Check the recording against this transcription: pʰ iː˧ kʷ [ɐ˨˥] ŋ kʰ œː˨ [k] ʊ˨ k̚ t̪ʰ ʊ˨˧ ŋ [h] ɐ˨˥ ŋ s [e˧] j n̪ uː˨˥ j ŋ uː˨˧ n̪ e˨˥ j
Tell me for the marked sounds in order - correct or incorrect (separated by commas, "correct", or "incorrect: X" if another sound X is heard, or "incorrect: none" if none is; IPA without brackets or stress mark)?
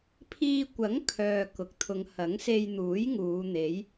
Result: correct, correct, correct, correct